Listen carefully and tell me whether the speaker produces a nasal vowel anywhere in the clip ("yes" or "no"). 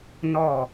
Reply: no